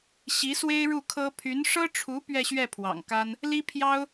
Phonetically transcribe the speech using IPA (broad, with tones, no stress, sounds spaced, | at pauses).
ɕ i˧˥ s w e˥ ɪ̯ ɻ u˥˩ kʰ ɤ˥ pʰ y˧˥ n ʂ ɤ˥ ʈ͡ʂʰ u˧˥ p ɥ ɛ˥˧ ɕ ɥ ɛ˥˩ pʰ w ɑ̰˨˩ ŋ k a˥ n | l i˥ pʰ j ɑ˥ ʊ̯